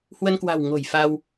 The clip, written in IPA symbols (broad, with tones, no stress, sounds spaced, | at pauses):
h w ə˧ n k w a̤˨˩ w ŋ o̤˨˩ j f a˧ w